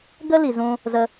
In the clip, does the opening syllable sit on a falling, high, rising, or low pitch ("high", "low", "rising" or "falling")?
high